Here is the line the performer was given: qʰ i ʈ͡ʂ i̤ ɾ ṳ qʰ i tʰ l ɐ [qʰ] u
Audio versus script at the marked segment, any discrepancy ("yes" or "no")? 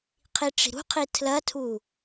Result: yes